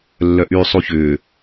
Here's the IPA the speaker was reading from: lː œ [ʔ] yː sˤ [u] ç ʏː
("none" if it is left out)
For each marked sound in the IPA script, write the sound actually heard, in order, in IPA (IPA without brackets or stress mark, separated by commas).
ʔ, u